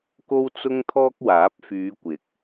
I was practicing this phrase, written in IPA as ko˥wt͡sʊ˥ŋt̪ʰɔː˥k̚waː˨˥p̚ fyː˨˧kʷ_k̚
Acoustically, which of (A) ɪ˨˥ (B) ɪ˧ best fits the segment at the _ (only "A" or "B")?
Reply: A